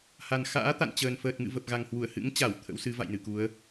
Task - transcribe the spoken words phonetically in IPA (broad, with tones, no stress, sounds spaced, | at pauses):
h a˨˩ n x a̰ː˧˥ t̪ a̰˧˨ n t͡ɕ əː˨˩ n f əː˨˩ t̚ ŋ ɨ̰˧˨ v ə˨˩ p̚ ɣ a˨˩ ŋ h w u˧˩ ə̯ h ɨ̰˧˥ ŋ t͡ɕ a˧˩ w t̪ʰ ə̰˧˥ w s ɨ˨˦ v a̰˧˨ j n ɨ˧˩ k u˨˦ ə̯